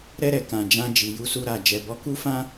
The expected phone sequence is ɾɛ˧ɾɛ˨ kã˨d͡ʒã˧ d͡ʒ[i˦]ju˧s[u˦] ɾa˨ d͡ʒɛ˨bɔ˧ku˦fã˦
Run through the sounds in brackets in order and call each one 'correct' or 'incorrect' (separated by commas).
incorrect, incorrect